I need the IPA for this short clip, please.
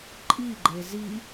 ǃʼ i ɡ͡ǃ e z i

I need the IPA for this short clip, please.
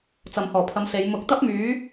t͡s ɐ˨ m h ɔː˨˩ pʰ ɐ˨˥ m s e˨˧ j m ʊ˨˥ k̚ t̪ ɐ˥ p̚ m yː˨˥

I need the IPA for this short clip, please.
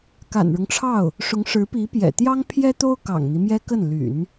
k a̰˨˩ n ɻ ʊ˦ ŋ ʈ͡ʂʰ ɑ˥˩ ʊ̯ | ʂ ʊ˧˥ ŋ ʂ ɻ̩˧˥ p i˧˥ p j ɛ̰˨˩ t̪ j ɑ˥ ŋ pʰ j ɛ˥ t̪ o˥ ʊ̯ k ɑ̰˨˩ ŋ n̪ i˦ m j ɛ˥ k ə˥˩ n l y̰˨˩˦ n

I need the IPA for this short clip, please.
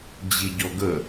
d͡ʑ i ɟ ɔ ɡ ə

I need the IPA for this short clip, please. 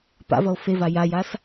p a̰ v ʌ o̯ f e v a j a j a s

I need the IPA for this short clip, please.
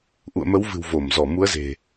ʔ ṵ˧˨ ə̯ m ə˨˦ w v ɨ̤˨˩ w v o˧˩ m z ɔ˧˩ m u˨˦ ə̯ z e̤˨˩

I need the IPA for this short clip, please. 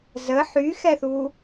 z ə ħ y x ɛ θ u

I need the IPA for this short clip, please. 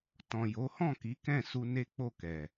t ɔ̃˨ j o˨˦ h ɔ̃˦˨ k i˨˦ k ɛ̃˦˨ s u˧ n e˦ k͡p o˦˨ k ɛ˨

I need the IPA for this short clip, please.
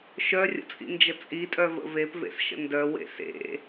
ʃ œ rʲ ə̰ t͡sʼ ḭ n d͡ʒ ə t͡sʼ i tʼ œ v ə̰ v e p v ḛ s ʃ ə̰ n d œ w ḛ s ḛ

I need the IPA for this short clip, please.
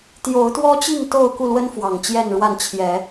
t̪ j o˨˦ ʊ̯ t̪ w ɔ˦ t͡ɕ i˥˨ ŋ t̪ o˥˨ ʊ̯ k u˥˨ l w ə˦ n f w ɑ˨˩ ŋ t͡ɕ j ɛ˥˨ n ɻ w a˥˨ n t͡ɕʰ j ɛ˨˦

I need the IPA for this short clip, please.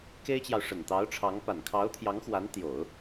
k e˥ ɪ̯ t͡ɕ j ɑ˨ ʊ̯ ʂ ə˨˩ n t̪ ɑ˧˥ ʊ̯ ʈ͡ʂʰ ɑ˧˥ ŋ p a˨˩ n kʰ ɑ˧˥ ʊ̯ t̪ʰ j ɑ˧˥ ŋ x w a˧˥ n t̪ j o˨˩˦ ʊ̯

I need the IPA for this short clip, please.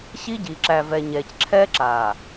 ɕ i˦ ɟ iː˨ ǁ æ˨ v ɛ˨ ɲ ɛː˨ c ǁʰ ɛː˦ ǁ aː˨

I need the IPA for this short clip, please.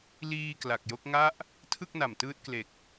l iː˧ k l a˨˩ k̚ j o˦˥ k̚ ŋ a˦˥ ʔ | tʰ ɯ˥˩ k̚ n a˨˩ m t ɯː˦˥ t̚ k l e˨˩ k̚

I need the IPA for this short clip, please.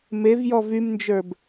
m e v j ɔ v y m n d͡ʒ ə˞ b

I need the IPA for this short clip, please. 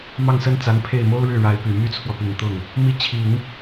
m ɑ˥˩ ŋ s ə˥ n t͡s a˧˥ n pʰ e˥˩ ɪ̯ m o˥ ʊ̯ ɻ ɻ̩˥˩ ɻ a˧˥ ɪ̯ p y˨˩ m y˥ t͡sʰ w ɔ˨ p i˨˩ ŋ t̪ ʊ˥˩ ŋ | m i˧˥ t͡ɕʰ i˨˩˦ ŋ

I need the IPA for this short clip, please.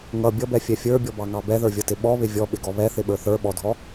ŋ ʌ bʲ ʌ b ɛ fʲ ɛ fʲ ə˞ bʲ ɔ b ɑ ŋ ɑ b ɛ ð ə˞ vʲ ʌ t ɪ ɓ ɔ β ɪ vʲ ɔ ɓ ɪ ɡ ɔ β ɛ θ ɪ ɓ ə˞ θ ə˞ ɓ ɔ dʱ ɔ

